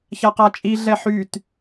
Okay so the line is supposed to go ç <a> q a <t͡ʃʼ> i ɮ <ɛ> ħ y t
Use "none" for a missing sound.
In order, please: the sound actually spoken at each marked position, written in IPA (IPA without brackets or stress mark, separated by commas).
a, t͡ʃʼ, ɛ